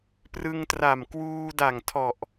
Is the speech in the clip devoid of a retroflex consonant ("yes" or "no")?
yes